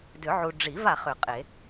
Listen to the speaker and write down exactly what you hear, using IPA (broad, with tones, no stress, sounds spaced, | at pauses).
d ʏ˨˩˦ ʕ u˨ ɖ͡ʐ i˨˩˦ v a˨ χ ʏ˨˩˦ qʼ e˨˩˦